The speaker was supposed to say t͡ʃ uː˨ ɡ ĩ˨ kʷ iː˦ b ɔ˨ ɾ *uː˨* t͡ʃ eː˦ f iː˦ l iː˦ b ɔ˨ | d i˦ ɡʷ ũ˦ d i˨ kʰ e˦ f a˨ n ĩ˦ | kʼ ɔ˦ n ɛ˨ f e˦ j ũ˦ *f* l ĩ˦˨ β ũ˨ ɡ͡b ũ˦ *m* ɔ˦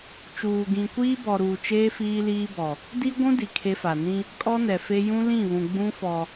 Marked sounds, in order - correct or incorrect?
correct, incorrect, incorrect

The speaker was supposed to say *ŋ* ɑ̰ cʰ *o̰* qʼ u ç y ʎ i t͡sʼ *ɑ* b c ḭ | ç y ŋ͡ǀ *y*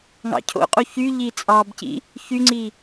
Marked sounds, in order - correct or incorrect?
correct, correct, correct, incorrect

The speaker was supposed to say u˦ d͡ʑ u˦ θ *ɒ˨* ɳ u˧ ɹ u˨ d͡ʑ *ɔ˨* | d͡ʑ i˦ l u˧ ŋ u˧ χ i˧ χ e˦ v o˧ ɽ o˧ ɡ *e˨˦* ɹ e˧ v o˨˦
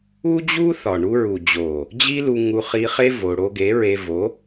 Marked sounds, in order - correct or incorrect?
correct, incorrect, correct

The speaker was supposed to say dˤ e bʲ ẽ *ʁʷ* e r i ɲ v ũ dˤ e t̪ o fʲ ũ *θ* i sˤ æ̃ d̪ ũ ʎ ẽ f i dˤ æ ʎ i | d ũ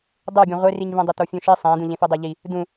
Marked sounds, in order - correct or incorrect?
correct, incorrect

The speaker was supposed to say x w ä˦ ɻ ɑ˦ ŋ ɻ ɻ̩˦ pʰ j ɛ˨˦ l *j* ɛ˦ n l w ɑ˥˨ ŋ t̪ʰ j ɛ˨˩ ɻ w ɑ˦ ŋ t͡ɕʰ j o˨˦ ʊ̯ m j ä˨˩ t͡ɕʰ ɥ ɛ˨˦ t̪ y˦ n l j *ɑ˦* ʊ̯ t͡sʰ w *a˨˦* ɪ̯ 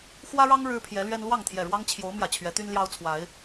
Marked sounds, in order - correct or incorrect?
incorrect, correct, correct

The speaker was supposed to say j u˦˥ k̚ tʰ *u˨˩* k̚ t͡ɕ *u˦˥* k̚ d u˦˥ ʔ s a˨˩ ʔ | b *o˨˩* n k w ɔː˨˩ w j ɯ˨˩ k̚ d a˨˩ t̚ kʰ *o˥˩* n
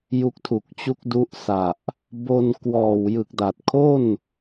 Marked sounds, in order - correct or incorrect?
correct, correct, incorrect, correct

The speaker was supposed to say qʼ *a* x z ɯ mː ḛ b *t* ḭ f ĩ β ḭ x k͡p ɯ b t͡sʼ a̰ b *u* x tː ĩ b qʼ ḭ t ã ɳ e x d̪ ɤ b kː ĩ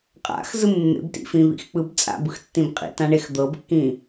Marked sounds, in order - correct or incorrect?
incorrect, correct, incorrect

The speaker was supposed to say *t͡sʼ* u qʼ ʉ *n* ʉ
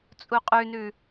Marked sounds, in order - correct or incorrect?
correct, correct

